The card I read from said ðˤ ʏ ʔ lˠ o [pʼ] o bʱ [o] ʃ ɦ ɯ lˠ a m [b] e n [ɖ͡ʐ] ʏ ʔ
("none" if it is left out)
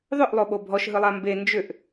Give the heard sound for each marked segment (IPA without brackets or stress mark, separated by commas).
ɓ, ɔ, b, d͡ʒ